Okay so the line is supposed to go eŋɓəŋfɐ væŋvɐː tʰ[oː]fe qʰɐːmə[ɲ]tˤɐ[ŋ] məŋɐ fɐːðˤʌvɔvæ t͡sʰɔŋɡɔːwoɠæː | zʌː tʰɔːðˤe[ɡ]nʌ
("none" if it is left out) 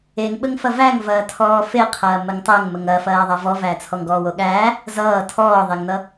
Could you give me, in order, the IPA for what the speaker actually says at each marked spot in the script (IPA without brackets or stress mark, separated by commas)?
ɔː, ŋ, ŋ, ŋ